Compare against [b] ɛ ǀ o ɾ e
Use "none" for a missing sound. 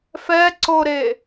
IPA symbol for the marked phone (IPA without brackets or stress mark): f